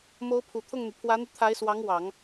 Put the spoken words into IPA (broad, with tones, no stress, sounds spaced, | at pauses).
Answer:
m o˧˥ ʊ̯ pʰ u˨˩ t̪ʰ ʊ˥˩ ŋ n̪ y˩ pʰ w ä˧˥ n̪ y˧ t̪ʰ a˧˥ ɪ̯ s w ɑ˧˥ ŋ w ɑ˨˩˦ ŋ